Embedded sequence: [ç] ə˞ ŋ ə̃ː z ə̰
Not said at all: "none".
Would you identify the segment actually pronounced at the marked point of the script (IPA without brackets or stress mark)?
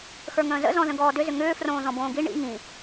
x